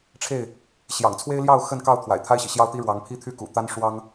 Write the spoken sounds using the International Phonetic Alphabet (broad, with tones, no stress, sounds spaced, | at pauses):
ʈ͡ʂʰ e˥˨ ɪ̯ | ɕ j ɑ̰˨˩ ŋ t͡sʰ w e˦ ɪ̯ l j ɑ˥˨ ʊ̯ x ə˥˨ n k ɑ˥˨ ʊ̯ t̪ʰ w a̰˨˩ ɪ̯ t̪ʰ a˦ ɪ̯ ɕ ḭ˨˩ ɕ j ɑ˦ ʊ̯ t̪ i˦ ɻ w ɑ˨˦ ŋ pʰ i˦ t̪ʰ y˥˨ k ṵ˨˩ t̪ a˦ n ʂ w ɑ˦ ŋ